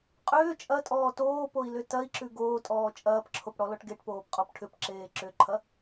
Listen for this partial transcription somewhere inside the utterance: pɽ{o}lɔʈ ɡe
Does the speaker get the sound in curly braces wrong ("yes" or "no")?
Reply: yes